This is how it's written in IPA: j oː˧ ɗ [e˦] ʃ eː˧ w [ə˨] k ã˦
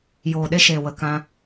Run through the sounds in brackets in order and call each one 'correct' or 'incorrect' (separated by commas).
correct, incorrect